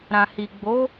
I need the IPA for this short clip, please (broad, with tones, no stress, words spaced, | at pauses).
ɾã˨hi˨ ɡ͡bo˨˦